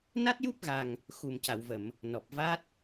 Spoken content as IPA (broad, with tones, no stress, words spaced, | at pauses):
na˦˥t̚ju˦˥p̚ɣa˨˩ŋ | xu˨˩mca˨˩˨wvə˨˩˨m | nɔ˨˩p̚va˦˥t̚